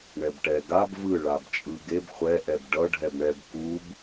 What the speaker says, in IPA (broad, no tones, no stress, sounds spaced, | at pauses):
ɳ ɛ b ʈ ɛ ɡ a b v ɯ ɭ a b t͡ʃʼ ɯ ɡ e b χʷ ɛ ʔ ɛ b ɖ ʌ ɖʱ ɛ b ɳ ɛ b k u b